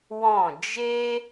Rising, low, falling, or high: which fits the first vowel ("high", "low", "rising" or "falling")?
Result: falling